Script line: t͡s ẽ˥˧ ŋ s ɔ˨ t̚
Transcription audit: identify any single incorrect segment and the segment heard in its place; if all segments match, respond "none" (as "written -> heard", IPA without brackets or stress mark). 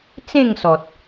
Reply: none